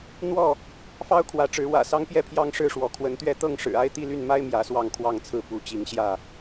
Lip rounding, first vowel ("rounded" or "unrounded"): rounded